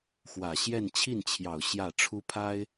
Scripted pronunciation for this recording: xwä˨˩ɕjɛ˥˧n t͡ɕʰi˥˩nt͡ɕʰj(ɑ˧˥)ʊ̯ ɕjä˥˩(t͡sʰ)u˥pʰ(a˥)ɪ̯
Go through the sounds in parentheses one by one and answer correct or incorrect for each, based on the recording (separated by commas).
incorrect, incorrect, correct